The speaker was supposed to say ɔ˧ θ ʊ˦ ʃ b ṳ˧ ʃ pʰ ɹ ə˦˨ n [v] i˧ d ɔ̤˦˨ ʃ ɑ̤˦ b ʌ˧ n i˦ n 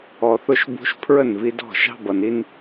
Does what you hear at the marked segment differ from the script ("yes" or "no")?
no